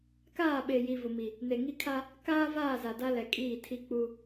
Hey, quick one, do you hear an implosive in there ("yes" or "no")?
yes